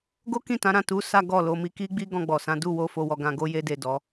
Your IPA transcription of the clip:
ɡ o˦ k ĩ˦˨ t ã˨˦ ɾ ã˦˨ t u˨˦ s a˦ ɡ ɔ˦˨ l o˧ m i˧ k i˦ ɡ͡b i˦ ɡ ɔ̃˧ ɡ͡b ɔ˨ s ã˨˦ d u˦˨ w o˧ f o˧ w ɔ˧ ɡ ã˧ ɡ o˦ j e˦ d e˦˨ d ɔ˨˦

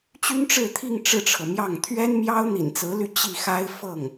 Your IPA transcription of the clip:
t͡ɕ y˥ n ʈ͡ʂ ɻ̩˥˧ t̪ʰ i˥˧ ŋ ʈ͡ʂ ɻ̩˥˩ ʈ͡ʂʰ ɤ˩ m j ɑ˥˩ ŋ t̪ʰ ɥ ɛ˥ n m j ɑ˥ ʊ̯ n̪ ḭ˨˩ n t͡s ɹ̩˧˥ l y˥˧ t͡ɕ i˥˩ x a˥ ɪ̯ f ɤ˥˩ ŋ

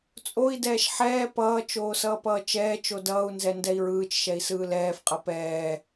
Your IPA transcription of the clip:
t͡sʼ o i̯ d ɛː ʃ ħ ɛː p ʌː t͡ʃ oː s ʌː p ʌː t͡ʃ ɛː t͡ʃ o d ʌː u̯ n z ɛ n d ɛ i̯ ɹ ɯː t͡ʃ ʃ ɛ i̯ s ɯː l ɛː f qʼ ʌ p ɛː

